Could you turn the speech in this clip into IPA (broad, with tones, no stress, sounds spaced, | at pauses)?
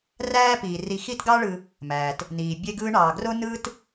r æː˦ p iː˩ r i˨ x i˦ t ɡ ɑ˦ ɭ ɯ˨ | m æː˩ t | n iː˩ bʲ e˦ ɡ ɯː˦ ɳ ɑː˩ ɡ r o˥ n ɯː˦ t